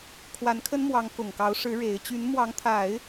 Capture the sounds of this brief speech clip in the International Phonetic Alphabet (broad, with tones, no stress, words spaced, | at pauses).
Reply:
kʰwa˧˥nkʰə˥nmwɑ˧˥ŋ kʊ˨˩ŋkɑ˧˥ʊ̯ʂɻ̩˧˥ ɻe˧˥ɪ̯ t͡ɕy˧˥nmwɑ˧˥ŋt̪ʰa˨˩˦ɪ̯